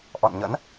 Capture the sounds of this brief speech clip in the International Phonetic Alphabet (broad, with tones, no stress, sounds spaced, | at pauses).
ʔ ɔ̰˧˨ n ɲ ə̰˧˥ n